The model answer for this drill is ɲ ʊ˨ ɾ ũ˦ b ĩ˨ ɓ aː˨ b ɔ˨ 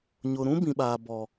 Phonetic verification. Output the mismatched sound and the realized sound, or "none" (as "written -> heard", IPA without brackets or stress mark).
none